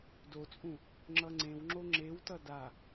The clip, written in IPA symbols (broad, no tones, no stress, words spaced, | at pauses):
dot͡sʼũ | ŋ͡ǁʌŋ͡ǀẽwŋ͡ǁo ŋ͡ǁewtʌ da